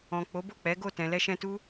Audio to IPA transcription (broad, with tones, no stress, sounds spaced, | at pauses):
ɔ̃˨ k͡p o˨˦ b o˦˨ k͡p ɛ˨˦ ɡ o˦˨ t ɛ̃˨ l ɛ˧ ʃ ɛ̃˧ t u˦